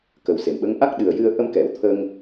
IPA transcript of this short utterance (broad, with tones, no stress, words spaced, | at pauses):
kə˨˩wse˨˩˨mɓə˧˥ŋ ʔa˦˥k̚ ɗɨ˨˩ə̯jɨ˧ə̯ ʔə˧mkɛ˨˩˨w t̪ʰə˧ŋ